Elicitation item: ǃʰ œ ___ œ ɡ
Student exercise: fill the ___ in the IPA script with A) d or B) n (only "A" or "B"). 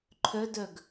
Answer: A